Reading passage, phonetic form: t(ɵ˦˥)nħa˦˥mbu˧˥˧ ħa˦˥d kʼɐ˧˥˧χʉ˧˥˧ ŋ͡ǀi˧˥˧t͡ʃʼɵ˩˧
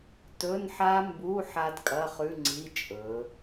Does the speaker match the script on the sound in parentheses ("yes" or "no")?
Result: no